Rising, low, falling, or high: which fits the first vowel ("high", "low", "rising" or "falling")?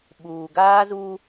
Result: low